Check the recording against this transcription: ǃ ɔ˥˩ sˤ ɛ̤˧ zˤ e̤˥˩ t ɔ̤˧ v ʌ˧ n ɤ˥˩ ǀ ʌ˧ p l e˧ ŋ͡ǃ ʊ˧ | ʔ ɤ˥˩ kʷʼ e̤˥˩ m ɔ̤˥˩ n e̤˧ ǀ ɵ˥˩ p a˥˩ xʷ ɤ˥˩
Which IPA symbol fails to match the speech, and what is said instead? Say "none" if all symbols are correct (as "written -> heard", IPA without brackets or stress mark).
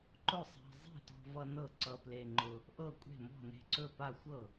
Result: ɔ˥˩ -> ʊ˥˩